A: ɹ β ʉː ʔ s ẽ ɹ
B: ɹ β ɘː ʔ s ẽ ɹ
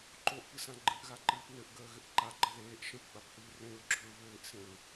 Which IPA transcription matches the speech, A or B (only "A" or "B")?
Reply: B